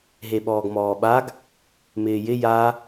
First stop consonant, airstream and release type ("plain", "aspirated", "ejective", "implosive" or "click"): implosive